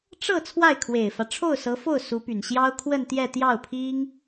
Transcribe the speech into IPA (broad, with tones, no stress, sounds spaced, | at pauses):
ʈ͡ʂ ɤ˥˧ t͡sʰ w a˥˩ ɪ̯ kʰ w e˨˩ ɪ̯ f ä˦ ʈ͡ʂʰ o˥˩ ʊ̯ s ɤ˧˥ f o˥˩ ʊ̯ s u˧˥ p y˨˩ n ɕ j ɑ˥ ʊ̯ kʰ w ə˥˧ n t̪ j ɛ˥˧ t̪ j ɑ˥˩ ʊ̯ pʰ i˥ ŋ